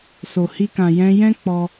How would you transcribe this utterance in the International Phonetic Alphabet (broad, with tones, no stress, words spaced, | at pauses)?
so˨hi˧kã˨ jɛ̃˧jɛ̃˦ k͡pɔ˦